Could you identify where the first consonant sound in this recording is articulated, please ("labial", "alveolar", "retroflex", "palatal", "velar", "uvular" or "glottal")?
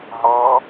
glottal